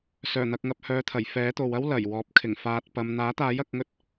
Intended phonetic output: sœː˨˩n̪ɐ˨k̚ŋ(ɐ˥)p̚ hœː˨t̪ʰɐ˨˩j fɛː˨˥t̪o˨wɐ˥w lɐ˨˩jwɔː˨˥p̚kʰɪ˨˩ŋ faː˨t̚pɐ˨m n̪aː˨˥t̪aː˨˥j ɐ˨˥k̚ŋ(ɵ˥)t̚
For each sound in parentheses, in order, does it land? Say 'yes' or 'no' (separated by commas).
no, yes